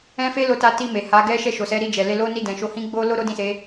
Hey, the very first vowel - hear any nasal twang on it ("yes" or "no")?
yes